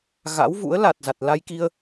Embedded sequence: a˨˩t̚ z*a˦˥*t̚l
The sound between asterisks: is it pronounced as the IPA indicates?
no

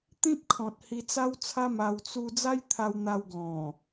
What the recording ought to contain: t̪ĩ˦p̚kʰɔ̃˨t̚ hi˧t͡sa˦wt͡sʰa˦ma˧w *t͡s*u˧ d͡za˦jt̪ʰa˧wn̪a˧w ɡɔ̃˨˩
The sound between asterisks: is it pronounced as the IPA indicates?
yes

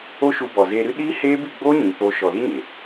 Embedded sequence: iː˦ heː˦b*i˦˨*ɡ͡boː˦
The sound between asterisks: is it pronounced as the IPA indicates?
yes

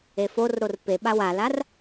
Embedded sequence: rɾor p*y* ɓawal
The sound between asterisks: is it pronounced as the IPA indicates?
no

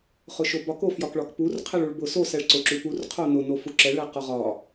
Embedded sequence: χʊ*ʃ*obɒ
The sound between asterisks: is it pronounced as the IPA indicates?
yes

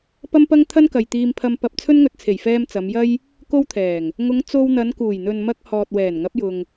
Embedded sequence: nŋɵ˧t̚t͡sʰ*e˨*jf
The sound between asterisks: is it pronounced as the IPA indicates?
no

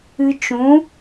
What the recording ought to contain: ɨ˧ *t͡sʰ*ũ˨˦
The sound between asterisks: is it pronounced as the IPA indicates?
no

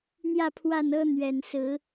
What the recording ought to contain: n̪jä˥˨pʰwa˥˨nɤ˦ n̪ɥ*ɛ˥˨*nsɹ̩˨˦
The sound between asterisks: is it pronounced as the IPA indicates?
no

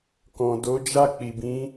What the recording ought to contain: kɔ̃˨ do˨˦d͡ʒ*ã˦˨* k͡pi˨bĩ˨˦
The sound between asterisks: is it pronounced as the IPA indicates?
no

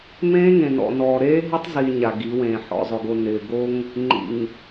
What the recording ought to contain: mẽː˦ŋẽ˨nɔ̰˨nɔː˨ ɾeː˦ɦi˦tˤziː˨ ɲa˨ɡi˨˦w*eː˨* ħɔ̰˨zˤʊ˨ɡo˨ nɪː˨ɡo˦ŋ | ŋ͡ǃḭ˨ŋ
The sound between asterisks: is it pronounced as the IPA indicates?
no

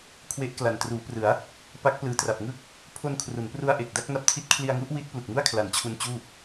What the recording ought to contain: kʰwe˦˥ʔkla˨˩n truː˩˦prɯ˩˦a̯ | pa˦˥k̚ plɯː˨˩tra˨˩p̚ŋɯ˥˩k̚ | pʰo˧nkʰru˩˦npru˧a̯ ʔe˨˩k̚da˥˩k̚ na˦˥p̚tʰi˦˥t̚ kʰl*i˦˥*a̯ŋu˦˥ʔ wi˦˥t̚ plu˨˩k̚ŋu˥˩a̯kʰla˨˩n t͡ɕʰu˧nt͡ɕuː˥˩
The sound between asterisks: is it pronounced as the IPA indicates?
no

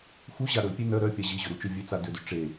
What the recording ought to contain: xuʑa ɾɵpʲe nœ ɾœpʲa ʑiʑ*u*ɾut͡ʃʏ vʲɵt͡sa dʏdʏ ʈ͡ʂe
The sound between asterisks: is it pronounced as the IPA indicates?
no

